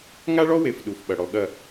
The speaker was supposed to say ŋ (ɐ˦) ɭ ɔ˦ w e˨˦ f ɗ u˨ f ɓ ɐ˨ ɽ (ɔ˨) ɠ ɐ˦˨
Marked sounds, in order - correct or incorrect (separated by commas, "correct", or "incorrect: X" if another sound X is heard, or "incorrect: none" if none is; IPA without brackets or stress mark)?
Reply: incorrect: a˦, correct